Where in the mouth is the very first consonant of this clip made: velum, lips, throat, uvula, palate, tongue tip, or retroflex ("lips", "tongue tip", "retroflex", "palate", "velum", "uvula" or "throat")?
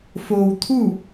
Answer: lips